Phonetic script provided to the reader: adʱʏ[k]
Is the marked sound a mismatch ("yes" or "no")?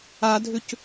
yes